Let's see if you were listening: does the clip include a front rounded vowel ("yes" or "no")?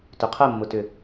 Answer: yes